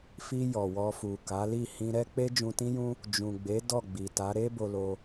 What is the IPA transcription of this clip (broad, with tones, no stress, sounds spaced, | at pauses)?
f i˧ j ɔ˨ w ɔ˧ f u˨ k a˨˦ l i˦˨ h ĩ˧ ɾ ɛ˦ k͡p e˦ d͡ʒ ũ˧ t ĩ˦ j ũ˦ | d͡ʒ ũ˨ ɡ͡b e˨˦ d ɔ˦˨ ɡ͡b i˨ t a˨˦ ɾ e˦ b o˧ l o˧